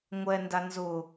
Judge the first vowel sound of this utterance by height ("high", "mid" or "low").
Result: mid